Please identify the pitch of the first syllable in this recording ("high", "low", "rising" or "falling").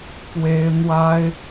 high